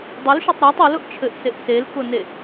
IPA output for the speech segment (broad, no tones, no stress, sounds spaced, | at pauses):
dˤ u l ʃ e tˤ ɾ a tˤ u l ʊ ʔ t͡ʃʰ ɘ ʔ s e ʔ s e l k ʊ n e